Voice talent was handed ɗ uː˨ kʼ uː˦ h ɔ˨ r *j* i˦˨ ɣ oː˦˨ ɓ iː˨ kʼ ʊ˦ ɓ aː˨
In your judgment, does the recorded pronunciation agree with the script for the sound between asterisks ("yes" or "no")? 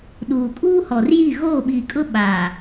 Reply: yes